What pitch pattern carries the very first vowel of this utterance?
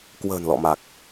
low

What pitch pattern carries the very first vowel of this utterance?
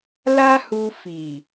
high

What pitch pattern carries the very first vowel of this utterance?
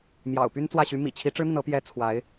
low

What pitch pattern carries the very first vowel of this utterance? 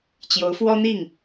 rising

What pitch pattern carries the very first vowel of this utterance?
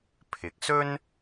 low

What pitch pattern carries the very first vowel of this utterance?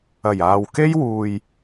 low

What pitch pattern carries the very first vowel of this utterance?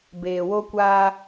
low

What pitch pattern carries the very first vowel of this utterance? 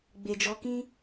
low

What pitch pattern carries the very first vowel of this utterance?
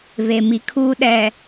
low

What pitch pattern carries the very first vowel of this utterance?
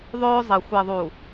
high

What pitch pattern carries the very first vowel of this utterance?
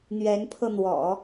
rising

